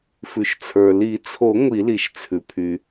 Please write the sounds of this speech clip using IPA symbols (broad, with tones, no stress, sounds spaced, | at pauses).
f ʉ˩ ʃ t͡sʰ ə˞˩ l i˨˩˦ t͡sʰ o˨˩˦ ŋʷ i˨˩˦ l i˩ ʃ t͡sʰ ʉ˩ pʰ y˩